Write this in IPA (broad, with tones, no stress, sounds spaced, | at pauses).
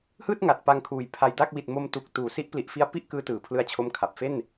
h ɯː˥˩ t̚ ŋ a˨˩ t̚ p a˧ ŋ kʰ uː˨˩ j pʰ a˧ j d a˥˩ k̚ w i˨˩ t̚ m o˧ m t u˨˩ k̚ t uː˩˦ s i˦˥ ʔ p l i˨˩ ʔ f i˦˥ a̯ p i˥˩ ʔ k ɯː˦˥ t ɯː˩˦ pʰ l ɯ˦˥ a̯ t͡ɕʰ o˦˥ m kʰ a˨˩ p̚ f e˥˩ n